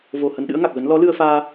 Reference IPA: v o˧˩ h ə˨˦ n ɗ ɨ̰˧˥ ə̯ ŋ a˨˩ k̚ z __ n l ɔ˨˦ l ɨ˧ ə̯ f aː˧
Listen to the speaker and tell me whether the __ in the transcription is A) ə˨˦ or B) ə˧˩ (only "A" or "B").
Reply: A